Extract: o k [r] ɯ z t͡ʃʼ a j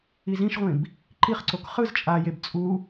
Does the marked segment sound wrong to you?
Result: yes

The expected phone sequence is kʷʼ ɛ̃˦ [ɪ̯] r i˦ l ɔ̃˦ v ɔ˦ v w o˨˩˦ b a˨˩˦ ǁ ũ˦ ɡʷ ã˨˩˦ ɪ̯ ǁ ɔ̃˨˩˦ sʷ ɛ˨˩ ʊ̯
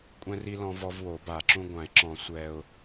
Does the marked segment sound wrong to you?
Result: yes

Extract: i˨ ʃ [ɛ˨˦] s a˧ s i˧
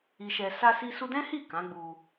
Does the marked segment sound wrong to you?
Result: yes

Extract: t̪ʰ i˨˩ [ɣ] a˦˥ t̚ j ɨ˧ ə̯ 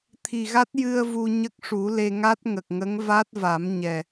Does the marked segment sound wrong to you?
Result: no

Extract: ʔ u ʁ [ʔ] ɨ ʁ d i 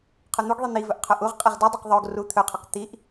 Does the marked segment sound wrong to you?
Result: yes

